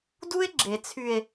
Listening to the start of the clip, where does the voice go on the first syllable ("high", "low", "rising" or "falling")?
high